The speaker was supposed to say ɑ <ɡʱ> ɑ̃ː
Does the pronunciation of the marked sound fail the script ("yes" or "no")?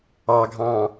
no